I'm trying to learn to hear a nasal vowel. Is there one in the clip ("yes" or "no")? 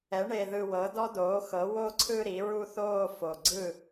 no